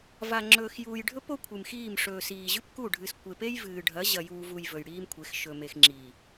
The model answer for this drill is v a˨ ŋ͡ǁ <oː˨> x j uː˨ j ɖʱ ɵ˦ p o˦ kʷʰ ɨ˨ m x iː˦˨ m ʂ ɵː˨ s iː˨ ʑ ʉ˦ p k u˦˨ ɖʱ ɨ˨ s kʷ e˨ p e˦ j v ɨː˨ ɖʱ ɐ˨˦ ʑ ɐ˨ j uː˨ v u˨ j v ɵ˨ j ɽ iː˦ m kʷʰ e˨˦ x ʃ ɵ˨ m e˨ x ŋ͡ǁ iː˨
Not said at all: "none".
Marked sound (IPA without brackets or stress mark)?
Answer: ɵː˨